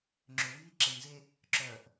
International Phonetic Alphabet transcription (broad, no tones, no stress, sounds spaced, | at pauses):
ŋ͡ǁ ø w iː ǁ ə ɲ z e | ǁ œ ʔ